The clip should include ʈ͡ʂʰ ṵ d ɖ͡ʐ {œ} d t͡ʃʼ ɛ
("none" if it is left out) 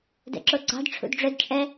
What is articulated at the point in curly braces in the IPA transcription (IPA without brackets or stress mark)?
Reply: œ